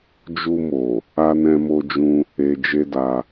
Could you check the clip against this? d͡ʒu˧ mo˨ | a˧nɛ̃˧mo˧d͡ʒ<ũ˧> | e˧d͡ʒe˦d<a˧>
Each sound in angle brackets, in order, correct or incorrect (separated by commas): correct, correct